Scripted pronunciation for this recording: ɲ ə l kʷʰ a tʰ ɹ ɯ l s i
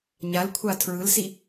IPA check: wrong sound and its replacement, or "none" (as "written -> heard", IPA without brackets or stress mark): ə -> a